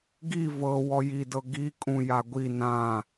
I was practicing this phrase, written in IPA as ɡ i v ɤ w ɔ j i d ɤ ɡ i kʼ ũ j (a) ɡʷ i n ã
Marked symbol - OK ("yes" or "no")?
yes